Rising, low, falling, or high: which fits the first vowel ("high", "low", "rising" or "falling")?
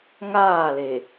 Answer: falling